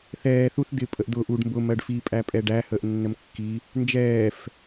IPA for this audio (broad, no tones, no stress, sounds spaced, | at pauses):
θ ɛː θ u θ d̪ ɪ pʼ ə ʔ d̪ ʊ ʔ u ɖ m b ʊ m ɜ ɖ f i pʼ æ pʼ ɛ ɖ æ h əː ʔ nː ə m kː i | n d͡ʒ ɛː f